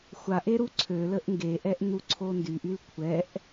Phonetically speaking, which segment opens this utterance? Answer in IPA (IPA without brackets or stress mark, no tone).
xʷ